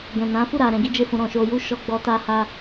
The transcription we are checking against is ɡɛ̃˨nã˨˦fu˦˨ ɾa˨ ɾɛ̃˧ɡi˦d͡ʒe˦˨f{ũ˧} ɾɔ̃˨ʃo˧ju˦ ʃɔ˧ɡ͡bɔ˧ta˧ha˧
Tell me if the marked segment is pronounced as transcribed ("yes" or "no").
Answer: yes